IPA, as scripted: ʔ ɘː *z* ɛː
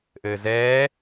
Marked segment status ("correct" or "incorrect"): correct